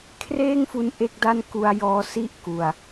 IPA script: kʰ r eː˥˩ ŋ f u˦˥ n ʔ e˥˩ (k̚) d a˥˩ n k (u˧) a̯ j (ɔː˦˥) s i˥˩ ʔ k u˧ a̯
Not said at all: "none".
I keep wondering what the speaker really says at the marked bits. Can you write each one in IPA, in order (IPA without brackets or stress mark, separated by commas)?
k̚, u˧, ɔː˦˥